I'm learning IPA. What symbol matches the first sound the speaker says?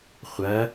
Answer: χʷ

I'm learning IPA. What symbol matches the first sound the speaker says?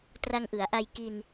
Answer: t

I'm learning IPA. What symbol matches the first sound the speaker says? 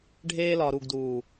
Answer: ɖʱ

